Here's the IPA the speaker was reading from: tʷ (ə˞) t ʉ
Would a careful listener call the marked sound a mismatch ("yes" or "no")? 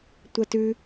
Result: yes